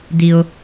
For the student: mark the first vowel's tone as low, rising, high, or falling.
high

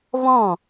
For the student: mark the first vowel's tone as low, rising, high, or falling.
falling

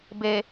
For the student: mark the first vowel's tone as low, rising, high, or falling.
low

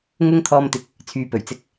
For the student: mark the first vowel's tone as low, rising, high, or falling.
high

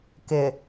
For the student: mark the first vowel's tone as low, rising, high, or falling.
low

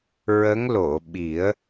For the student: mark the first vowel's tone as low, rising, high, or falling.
rising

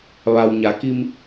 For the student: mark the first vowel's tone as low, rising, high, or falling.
low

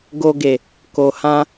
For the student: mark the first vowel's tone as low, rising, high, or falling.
low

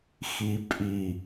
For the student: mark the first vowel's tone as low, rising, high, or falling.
low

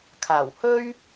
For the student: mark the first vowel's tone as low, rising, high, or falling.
low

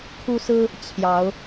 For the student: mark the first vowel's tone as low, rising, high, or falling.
high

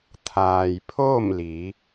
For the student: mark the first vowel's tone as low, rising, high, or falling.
low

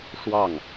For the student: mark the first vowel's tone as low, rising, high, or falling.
falling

